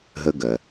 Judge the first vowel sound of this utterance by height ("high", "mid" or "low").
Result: mid